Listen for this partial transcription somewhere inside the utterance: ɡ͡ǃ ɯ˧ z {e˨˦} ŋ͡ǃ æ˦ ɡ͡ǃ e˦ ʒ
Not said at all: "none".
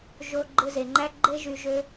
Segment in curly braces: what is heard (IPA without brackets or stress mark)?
e˨